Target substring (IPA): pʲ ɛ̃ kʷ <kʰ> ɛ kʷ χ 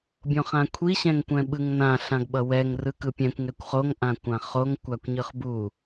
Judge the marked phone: incorrect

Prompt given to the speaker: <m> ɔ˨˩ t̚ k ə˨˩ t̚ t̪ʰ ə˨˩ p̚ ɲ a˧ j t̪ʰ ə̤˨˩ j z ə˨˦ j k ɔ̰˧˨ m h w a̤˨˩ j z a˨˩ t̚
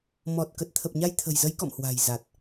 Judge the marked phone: correct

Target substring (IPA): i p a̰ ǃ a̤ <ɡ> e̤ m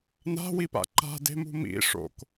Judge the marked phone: incorrect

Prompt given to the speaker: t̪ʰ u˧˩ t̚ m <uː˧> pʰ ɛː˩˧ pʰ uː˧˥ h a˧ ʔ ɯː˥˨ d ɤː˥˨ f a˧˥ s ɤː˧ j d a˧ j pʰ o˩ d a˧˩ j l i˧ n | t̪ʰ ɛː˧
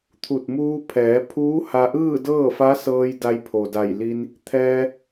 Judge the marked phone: correct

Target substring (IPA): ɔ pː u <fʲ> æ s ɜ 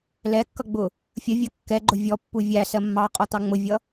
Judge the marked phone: incorrect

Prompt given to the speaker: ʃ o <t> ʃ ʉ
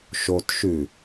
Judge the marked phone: correct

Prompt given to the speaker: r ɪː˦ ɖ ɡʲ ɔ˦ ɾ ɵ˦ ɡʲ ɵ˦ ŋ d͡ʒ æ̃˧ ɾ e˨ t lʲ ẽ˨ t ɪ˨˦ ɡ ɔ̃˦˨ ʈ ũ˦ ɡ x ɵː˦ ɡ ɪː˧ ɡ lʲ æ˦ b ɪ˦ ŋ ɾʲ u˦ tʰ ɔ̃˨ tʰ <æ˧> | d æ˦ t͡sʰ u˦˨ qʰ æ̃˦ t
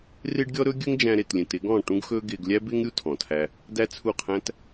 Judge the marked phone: correct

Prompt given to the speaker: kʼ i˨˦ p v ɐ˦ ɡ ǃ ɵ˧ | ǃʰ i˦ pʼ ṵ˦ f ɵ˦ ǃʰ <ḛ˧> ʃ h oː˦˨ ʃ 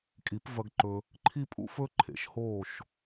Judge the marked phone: incorrect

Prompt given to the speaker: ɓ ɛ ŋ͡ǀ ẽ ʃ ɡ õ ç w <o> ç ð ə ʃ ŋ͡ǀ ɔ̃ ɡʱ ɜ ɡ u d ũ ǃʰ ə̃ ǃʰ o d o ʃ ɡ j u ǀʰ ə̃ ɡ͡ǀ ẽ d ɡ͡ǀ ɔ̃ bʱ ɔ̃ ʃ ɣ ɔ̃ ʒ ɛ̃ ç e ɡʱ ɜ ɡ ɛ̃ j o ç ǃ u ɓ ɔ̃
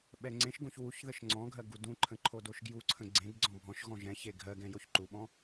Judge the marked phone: incorrect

